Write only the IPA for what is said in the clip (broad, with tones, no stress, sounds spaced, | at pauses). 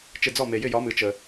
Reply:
t͡ʃ ɪ˧˩ d͡z ɔ˥˩ m e˩ j ɪ˥˩ j ɒ˨˥ m ɨ˩˧ t͡ʃ ə˩